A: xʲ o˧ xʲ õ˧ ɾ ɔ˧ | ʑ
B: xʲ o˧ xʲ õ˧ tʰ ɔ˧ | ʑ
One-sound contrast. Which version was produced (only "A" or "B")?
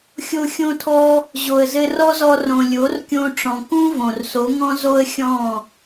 B